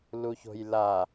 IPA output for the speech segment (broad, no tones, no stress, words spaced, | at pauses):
luço̤jla